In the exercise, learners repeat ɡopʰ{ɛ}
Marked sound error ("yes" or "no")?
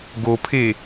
yes